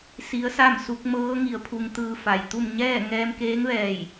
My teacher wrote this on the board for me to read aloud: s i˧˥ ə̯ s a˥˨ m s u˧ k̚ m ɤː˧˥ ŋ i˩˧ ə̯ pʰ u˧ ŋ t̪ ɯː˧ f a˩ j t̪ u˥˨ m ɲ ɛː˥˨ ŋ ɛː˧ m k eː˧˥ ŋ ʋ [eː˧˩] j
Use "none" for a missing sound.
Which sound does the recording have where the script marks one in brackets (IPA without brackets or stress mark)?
ɛː˧˩